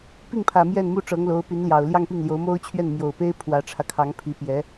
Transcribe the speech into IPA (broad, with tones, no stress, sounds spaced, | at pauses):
p i˥˩ ŋ pʰ ä˨˩ m j ɛ˥˧ n m u˥˩ ʈ͡ʂ ɤ˧˥ ŋ l o˧˥ ʊ̯ p y˧˥ n l j ɑ˨˩ ʊ̯ l j ɑ˥˧ ŋ p i˥˩ ŋ l j o˧˥ ʊ̯ m o˥ ʊ̯ t͡ɕʰ ɥ ɛ˥˩ n m j o˨˩ ʊ̯ p e˥ ɪ̯ pʰ w ä˧˥ ʈ͡ʂʰ ä˧ kʰ ɑ˧˥ ŋ pʰ i˧˥ p j ɛ˧˥